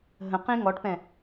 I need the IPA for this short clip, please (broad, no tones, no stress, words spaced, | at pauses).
ɦə̃qĩ ŋɔʈpɛ̃